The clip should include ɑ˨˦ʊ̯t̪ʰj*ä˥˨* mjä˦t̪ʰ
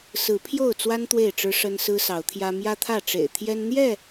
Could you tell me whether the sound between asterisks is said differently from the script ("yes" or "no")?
yes